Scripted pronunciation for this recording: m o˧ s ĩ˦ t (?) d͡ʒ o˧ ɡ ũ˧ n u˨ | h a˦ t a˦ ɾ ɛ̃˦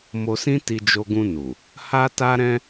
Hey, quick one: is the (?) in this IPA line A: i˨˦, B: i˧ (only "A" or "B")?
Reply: B